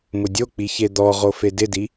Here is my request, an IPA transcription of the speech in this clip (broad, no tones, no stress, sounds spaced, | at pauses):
m ʊ dʲ o k͡p i ç e d̪ ɔ ʁ o f e d ɪ d i